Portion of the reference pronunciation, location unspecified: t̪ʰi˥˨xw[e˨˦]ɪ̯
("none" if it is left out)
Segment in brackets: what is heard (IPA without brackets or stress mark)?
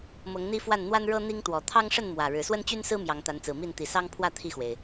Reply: e˩